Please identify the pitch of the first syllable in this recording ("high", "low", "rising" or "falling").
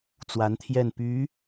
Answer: rising